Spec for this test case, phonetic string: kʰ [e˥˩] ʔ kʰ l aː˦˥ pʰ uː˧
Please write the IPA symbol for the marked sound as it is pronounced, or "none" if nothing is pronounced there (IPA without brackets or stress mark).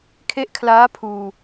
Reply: e˦˥